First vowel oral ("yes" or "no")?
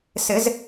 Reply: yes